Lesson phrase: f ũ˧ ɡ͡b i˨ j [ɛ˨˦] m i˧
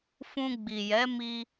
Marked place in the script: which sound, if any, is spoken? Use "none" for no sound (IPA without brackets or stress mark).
ɛ˨˦